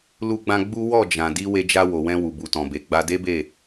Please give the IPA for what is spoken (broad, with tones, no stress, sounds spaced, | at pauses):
l u˧ ɡ͡b ã˧ ɡ͡b u˦ w ɔ˦˨ d͡ʒ ã˨ d i˧ w e˧ d͡ʒ a˧ w o˨ w ɛ̃˧ w u˨ b u˨ t ɔ̃˨ b e˨ ɡ͡b a˧ d e˦ b e˦˨